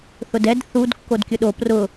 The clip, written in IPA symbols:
θ ʊ d ɛ d θ u d kː o d kʲ ʊ ɗ o p r ʊ

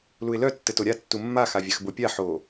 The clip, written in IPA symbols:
l u ɪ̯ l œ tː ɘ t o ɾʲ a tː u mː a x a vʲ a x b o pʲ a ħ o

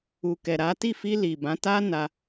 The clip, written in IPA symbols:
u˨ k ɛ˨ ɾ a˨˦ t i˦˨ f i˧ l i˨ b ã˨˦ t a˦ n a˧

